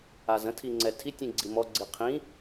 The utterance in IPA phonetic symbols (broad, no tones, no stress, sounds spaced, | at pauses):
a z ə̃ tʰ i ŋ͡ǀ ɛ tʰ i tʲ ĩ ɡ͡ǀ i m ɔ ɡ͡ǀ i qʰ ĩ